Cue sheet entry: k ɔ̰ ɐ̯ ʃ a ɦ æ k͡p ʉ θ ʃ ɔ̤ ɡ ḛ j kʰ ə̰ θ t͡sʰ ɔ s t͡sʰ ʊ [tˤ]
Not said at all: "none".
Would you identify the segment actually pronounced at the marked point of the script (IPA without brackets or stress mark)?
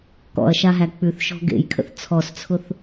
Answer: θ